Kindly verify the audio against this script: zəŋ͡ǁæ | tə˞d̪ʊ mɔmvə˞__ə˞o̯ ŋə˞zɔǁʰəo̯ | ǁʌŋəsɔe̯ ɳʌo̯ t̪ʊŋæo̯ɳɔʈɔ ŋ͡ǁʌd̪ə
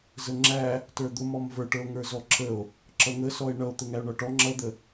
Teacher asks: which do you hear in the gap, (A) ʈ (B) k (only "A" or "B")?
A